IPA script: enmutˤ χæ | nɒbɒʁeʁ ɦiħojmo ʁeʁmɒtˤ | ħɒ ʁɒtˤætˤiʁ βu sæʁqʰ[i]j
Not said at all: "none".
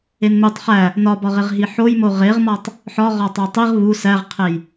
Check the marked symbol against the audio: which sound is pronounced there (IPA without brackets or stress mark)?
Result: e